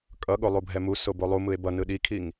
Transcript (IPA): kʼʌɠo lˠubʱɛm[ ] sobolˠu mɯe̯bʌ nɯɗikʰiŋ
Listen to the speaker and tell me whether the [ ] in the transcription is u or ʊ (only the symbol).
u